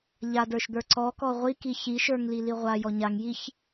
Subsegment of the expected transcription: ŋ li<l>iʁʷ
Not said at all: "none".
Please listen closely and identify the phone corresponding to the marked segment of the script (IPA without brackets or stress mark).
l